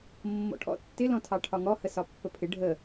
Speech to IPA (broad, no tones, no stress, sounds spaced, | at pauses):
mː ɔ̰ ʈʰ ɔ̰ tː ɪ l ɔ̃ tʰ ɑ ʈʰ ɒ ŋ ɔ h ə s ɒ pː ə pʰ ɪ ɖʱ ə